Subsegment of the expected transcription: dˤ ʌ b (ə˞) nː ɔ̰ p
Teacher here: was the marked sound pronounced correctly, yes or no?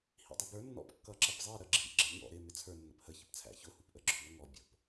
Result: yes